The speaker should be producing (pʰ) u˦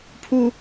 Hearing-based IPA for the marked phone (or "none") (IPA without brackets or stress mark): pʰ